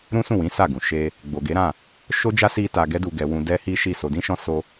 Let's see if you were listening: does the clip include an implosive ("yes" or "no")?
no